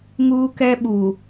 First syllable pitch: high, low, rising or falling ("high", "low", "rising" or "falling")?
high